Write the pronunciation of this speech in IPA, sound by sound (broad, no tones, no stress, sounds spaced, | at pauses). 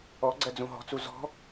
ɔ ɡ͡ǀ ɜ d͡z ũ ɦ ɔ̤ t͡s u z ɔ̤